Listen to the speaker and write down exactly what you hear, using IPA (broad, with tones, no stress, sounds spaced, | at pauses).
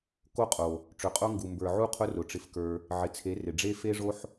k o˦ qʼ o˨ | ʈ͡ʂ ɵ˨ qʼ o˦ ŋ ɡ u˨ m b ə˞˨ ʕ u˦ qʰ ʊ˦ r ʊ˨˦ ʈ͡ʂ ɪ˧ f k ə˞˧ | ʕ ɪ˨ t͡sʰ e˨˦ r ɪ˨ ɖ͡ʐ e˦ f e˦ ʐ o˦ ħ